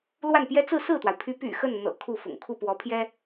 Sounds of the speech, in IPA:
l w a˥˩ n p j ɛ˥ t͡s ɹ̩˥˧ s ɹ̩˥˩ t̪ w a˩ ɪ̯ pʰ y˧˥ p y̰˨˩ x ə˥˩ n n̪ ɤ̰˨˩ kʰ u˥˩ f ʊ̰˨˩ ŋ kʰ u˥˩ p w ɔ˧˥ pʰ j ɛ˥

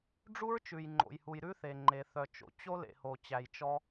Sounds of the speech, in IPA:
ɖ͡ʐ u˦ ɹ t͡ʃ ʉ˨ j ŋ͡ǃ o̰˨ j h u˨ j ɾ ʉ˦ θ e˨ ŋ͡ǃ e˨ θ œ˨ t͡ʃ o̰˨ t͡ɕ o˦ l ḛ˨ h o˨ t͡ɕ æ˨ j t͡ʃ ɔ˦

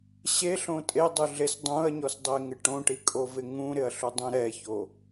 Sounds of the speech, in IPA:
ɕ e ɬ õ tʼ e dˤ u ɮ e s dˤ ũ ɐ̯ ɲ ɔ s dˤ e ŋ ɪ ʈ õ ʈ i kʼ o v ɪ ŋ ũ ɾ ɪ ɐ̯ ɬ u dˤ ũ ɾ ɛ ç o

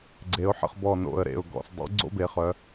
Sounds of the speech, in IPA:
ɡ͡ǀ e˩˧ ʊ̯ ħ ə̰˧˩ χ b ɔ˧˩ n o̰˧˩ ə̯ ɾ ḛ˧˩ ʊ̯ ɡ ɔ̰˧˩ s dˤ o̰˨˥ ɡ͡ǀ o̰˦ b e˩˧ χ œ˩˧

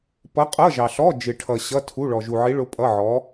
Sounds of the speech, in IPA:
p ʌ˧˥ qʼ ʌ˧˥˧ ʒ ɑ˨ ɬ ɔ˧˥˧ d͡ʒ ɪ˨ ʈʰ ʌ˨ ɕ ʌ˧˥˧ tʰ u˧˥˧ ɭ ɔ˨ ʒ u˨ ʕ i˧˥ ɭ ʊ˧˥ pʼ ʌ˧˥˧ ʕ ɔ˧˥

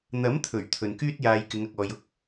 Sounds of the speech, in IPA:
n̪ ɐ˨˥ m t̪ʰ ɵ˨˩ ɥ t̪ʰ ɵ˨ n k yː˥ t̚ j aː˧ j k ɪ˨˧ ŋ ɐ˨ k̚ ɔː˨ j ʊ˥ k̚

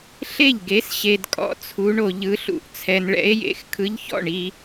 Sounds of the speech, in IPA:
ɬ e˥˩ ʎ ɡ e˨˥ s ɕ e˨ d kʼ ɔ̰˨˥ t͡sʰ u˨˥ ɳ o˨ ʎ ɯ˨˥ ɬ ṵ˨ ʔ t͡sʰ ɛ˨ n ɭ ɛ̰˨˥ e̯ j ḛ˨˥ x kʰ ɯ˨˥ ʎ ç ɔ̰˥˩ ɳ i˨

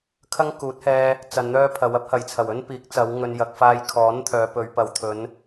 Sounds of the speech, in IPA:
kʰ ɐ˥ ŋ k uː˨˥ t̚ h ɛː˧ | t͡s ɐ˧ n n̪ œː˥ pʰ ɐ˨˧ w ɐ˥ p̚ h ɐ˨˩ j t͡sʰ ɐ˨˩ w ɵ˥ n p iː˨˥ k̚ t͡s ɐ˨˧ w ŋ ɵ˨ n j ɐ˨ k̚ f aː˧ j kʰ ɔː˨˥ n t̪ʰ œː˨˧ p ɵ˨˧ ɥ p ɐ˨ w t̪ʰ ɵ˨˧ n

